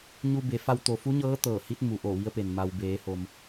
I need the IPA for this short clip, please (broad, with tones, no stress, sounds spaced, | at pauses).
ɲ u˧ b e˩˧ f a˧ w t̪ o˩ f u˧˥ ɲ ɤː˧˥ t̪ ɤː˧˩ h i˧˥ t̚ m u˩˧ ʔ o˧˩ ʋ i˧˥ ə̯ p e˩ n m a˩ w b eː˩˧ h o˩ m